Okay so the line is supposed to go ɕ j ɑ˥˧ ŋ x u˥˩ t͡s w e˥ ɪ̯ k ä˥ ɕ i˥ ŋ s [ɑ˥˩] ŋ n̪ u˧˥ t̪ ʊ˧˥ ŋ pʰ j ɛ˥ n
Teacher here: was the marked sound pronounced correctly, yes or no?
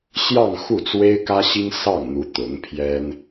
yes